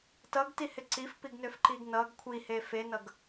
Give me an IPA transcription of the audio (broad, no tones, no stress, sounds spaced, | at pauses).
t ʌ ɡ t i h ɪ ǀ i f p i ɡ n ø f ǃ i ɡ n ʌ ɡ kʷʰ i h e f e n ʌ ɡ